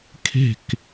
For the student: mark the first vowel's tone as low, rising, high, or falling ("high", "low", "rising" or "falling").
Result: falling